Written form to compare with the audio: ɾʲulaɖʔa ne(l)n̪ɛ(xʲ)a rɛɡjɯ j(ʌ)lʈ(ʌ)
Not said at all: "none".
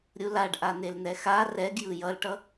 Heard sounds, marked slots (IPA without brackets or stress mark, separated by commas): l, x, ʌ, ʌ